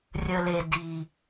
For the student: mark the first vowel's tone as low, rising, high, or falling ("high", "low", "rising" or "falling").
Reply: low